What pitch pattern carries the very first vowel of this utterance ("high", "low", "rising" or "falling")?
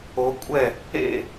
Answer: rising